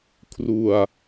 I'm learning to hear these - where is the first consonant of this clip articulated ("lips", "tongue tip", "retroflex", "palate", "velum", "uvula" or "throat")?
velum